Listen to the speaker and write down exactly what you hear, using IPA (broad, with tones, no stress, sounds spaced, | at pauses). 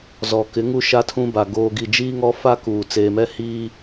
z ɔ˨ k ɪ˨˦ ŋ u˦ ʃ a˦ tʰ ũ˦ b a˨ ɡ oː˨ ɡ i˨ d͡ʒ iː˦ ŋ ɔ˦ f a˦ k uː˨ t͡s eː˨ m ɛ˦ h iː˦